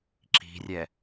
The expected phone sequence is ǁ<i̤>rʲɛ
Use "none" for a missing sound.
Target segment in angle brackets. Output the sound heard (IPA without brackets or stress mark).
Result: i̤